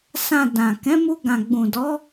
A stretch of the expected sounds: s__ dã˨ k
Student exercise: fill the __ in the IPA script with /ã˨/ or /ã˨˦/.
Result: ã˨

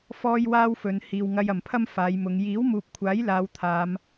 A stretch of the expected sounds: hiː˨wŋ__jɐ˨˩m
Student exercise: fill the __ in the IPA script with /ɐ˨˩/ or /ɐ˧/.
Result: ɐ˧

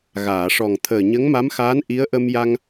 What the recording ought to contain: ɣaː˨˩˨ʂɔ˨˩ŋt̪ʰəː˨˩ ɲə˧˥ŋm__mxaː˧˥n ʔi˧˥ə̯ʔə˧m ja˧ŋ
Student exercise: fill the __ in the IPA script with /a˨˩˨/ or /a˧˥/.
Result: a˧˥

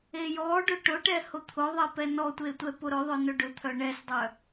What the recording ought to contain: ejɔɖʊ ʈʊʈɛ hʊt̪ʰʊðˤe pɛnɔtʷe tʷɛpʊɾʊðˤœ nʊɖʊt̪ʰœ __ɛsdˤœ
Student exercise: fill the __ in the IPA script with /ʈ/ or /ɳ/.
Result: ɳ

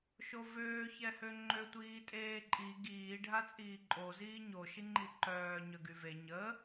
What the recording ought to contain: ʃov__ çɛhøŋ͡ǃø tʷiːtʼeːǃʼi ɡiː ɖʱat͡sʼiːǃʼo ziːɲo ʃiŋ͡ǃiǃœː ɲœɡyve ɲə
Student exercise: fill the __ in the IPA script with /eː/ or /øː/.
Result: øː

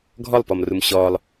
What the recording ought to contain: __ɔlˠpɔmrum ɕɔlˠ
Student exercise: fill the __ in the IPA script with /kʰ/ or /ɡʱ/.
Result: ɡʱ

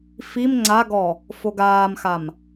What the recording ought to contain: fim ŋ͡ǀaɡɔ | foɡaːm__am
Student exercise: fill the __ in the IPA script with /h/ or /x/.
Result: x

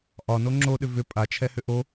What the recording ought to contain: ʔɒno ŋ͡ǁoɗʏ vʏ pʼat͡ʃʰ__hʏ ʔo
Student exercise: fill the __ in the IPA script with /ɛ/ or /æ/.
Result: ɛ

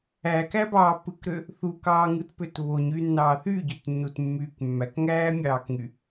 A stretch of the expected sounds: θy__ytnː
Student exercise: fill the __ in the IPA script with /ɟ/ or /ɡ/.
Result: ɟ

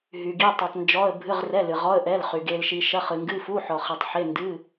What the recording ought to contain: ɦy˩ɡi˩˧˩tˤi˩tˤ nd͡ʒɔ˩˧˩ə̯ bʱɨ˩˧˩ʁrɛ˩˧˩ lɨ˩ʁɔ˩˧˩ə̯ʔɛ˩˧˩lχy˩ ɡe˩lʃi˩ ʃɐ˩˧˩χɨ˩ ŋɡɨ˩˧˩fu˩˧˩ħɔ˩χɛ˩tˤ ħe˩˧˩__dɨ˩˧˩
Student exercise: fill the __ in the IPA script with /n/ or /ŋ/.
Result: n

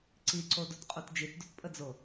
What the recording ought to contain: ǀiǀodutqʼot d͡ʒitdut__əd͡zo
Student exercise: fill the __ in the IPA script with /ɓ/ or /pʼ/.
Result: pʼ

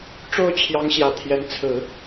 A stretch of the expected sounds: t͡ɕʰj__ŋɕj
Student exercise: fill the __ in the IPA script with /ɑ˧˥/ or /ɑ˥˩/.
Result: ɑ˧˥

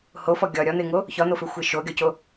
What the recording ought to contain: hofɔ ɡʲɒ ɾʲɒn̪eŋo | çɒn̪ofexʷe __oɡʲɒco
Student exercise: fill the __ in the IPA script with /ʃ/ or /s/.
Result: ʃ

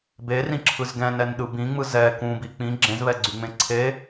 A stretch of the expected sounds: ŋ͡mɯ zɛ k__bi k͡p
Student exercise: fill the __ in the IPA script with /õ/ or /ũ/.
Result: ũ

